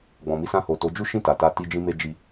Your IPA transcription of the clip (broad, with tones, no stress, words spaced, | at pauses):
ɡ͡bɔ̃˨ mi˧sã˧ho˨ to˨˦ d͡ʒu˦ʃĩ˦˨ ta˨ta˧ ti˧d͡ʒĩ˧me˧d͡ʒi˧